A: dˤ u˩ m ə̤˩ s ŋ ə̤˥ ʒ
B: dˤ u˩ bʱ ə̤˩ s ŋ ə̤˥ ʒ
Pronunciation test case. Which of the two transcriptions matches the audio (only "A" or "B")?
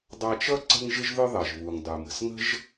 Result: A